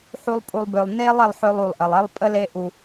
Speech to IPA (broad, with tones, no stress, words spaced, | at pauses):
ħu˧lˠ pʼu˨lˠbø˨lˠ ne˦lˠ e˧lˠħø˧lˠu˨lˠʔə˨lˠ e˦lˠpʼə˦le˦ ʔu˧